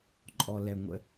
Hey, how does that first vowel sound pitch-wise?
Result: low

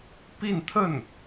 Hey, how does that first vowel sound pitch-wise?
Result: falling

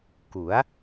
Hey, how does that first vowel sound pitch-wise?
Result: rising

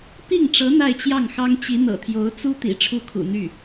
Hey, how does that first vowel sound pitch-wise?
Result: falling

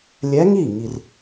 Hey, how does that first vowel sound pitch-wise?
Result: rising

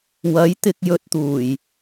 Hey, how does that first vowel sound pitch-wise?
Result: rising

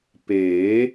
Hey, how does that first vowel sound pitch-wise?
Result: rising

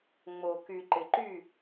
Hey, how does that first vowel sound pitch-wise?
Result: low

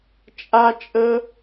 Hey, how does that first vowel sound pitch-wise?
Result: high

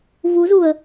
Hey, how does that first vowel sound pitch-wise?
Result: rising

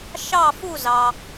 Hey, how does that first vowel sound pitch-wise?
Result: falling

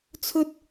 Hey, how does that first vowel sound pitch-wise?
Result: high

